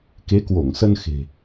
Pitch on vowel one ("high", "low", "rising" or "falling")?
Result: rising